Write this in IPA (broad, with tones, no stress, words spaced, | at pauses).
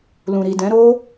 lũ˨ɾi˨dɛ̃˨˦ ɾo˦